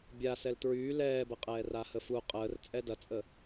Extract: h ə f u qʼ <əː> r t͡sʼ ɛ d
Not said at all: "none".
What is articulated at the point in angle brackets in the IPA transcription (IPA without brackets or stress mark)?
əː